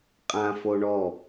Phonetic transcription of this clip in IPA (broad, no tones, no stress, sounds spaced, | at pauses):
qʼ ã f o ɳ ɔ